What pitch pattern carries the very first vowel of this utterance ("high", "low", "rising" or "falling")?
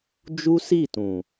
high